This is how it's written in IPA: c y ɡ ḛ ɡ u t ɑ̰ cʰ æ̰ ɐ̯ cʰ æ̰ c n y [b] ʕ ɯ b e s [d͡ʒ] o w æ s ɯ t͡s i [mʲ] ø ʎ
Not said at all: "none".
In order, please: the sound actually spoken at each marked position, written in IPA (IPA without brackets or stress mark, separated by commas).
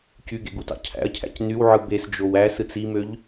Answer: w, d͡ʒ, m